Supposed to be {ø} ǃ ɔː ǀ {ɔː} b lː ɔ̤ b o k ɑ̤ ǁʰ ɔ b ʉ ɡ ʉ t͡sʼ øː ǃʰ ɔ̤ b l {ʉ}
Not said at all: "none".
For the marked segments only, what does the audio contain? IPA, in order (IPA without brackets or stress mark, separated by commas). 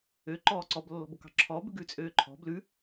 ø, ɔ, ʉ